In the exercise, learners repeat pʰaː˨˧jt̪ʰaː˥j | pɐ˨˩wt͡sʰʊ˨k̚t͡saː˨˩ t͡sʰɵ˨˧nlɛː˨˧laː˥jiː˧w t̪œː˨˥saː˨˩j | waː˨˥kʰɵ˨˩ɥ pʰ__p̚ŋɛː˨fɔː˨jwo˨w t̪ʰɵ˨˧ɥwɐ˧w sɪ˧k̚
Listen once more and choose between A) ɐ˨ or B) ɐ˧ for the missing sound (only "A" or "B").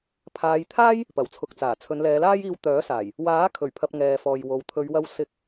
B